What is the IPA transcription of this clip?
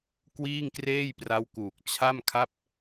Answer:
kwiː˥˩ŋkreː˥˩jpra˦˥wkuː˨˩k̚ t͡ɕʰa˥˩mkʰa˥˩p̚

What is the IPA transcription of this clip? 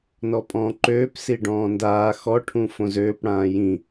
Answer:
nɔpʼɔ̃ːǃøːp siɖɔ̃ːndaː xɔ ʈʰũfõzøːp ɽãːjĩ

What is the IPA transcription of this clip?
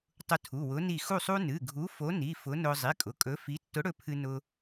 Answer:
tˤʊ˧tʰu˩˧˩wʊ˨˥ ni˧˩ xu˧˩sˤu˧ nɨ˩˧˩ɡʱu˨˥ fo˨˥ni˩˧˩ fʊ˨˥nʊ˧ zˤi˩˧˩ kʼʊ˩˧˩kʼɵ˨˥fi˨˥ tːʊ˨˥ɽɵ˧ pʰɨ˧nʊ˧

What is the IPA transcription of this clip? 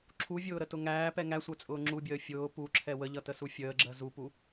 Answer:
ǁʰuvʲʊːɾətʊ ŋæːpɛ ŋæsʷɜt͡sʼʊː ŋ͡ǁubʲəː fʲʊː puǁʰɛ wəʎʌtəsu fʲəːɡ͡ǁɜ zupu

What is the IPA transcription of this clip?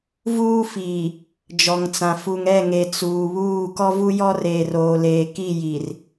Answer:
vuː˦fiː˨ | d͡ʒɔ˨ŋt͡sã˨ fu˨ŋɛ˦˨ŋe˨ t͡suː˨ βuː˦˨ kɔ˦vu˦jɔ˦reː˨r oː˨leː˨ki˦˨ ji˨r

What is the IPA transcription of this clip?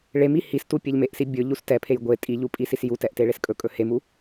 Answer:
ɭemi histu pʲeʎmeʔsi bʲɵ ʎustɛpʰej ɡʷe tʼiʎu pʼisisjutɛʔ teɭeskʼɵkʼɵ hemu

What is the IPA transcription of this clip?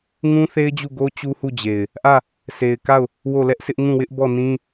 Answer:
ŋũ˦θe˦ɪ̯d͡ʑu˦˨ɡo˦ t͡ɕu˦hu˦˨d͡ʑe˨ɪ̯ | ʔä˦˨ | sʰe˨ɪ̯ka˦˨ʊ̯ | wo˦˨lɛ˦ʔsʰɪ˦ʔ ŋũ˦˨wɪ˦ʔ bɔ˦˨nĩ˦

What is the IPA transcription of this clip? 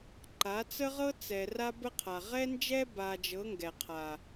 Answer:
ǃa˨˦t͡sə˦ʁɤ˦t͡sɛ˨ ra˦bə˦qʰa˨ ʁɛ˦nd͡ʒɛ˦ba˨d͡ʒɤ˨˦ ŋɡɛ˨qʰa˨

